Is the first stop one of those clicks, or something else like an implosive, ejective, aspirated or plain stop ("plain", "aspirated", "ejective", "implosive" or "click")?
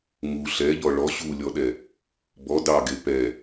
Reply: implosive